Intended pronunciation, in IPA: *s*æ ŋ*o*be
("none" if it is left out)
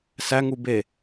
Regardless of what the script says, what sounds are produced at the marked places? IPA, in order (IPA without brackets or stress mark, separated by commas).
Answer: s, u